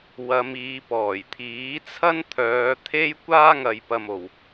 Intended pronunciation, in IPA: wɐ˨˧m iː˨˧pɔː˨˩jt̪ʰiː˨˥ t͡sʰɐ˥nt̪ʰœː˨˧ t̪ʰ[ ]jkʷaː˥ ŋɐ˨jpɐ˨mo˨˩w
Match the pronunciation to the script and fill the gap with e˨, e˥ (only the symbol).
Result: e˥